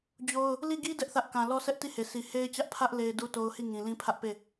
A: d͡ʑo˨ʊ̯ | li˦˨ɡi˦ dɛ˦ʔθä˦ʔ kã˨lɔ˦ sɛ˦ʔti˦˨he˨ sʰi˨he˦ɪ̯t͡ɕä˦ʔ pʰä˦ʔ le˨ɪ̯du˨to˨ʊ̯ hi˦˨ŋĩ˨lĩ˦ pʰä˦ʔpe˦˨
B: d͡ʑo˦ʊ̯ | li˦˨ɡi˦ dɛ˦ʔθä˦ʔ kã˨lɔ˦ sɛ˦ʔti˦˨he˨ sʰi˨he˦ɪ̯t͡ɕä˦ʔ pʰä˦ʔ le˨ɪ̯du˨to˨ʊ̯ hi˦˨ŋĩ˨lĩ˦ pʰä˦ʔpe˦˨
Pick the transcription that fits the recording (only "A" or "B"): B